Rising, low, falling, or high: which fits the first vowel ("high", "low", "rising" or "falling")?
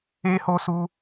high